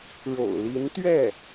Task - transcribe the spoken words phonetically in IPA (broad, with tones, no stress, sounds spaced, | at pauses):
ɻ o̰˨˩ ʊ̯ l i˧˥ n t̪ ɥ ɛ˥˩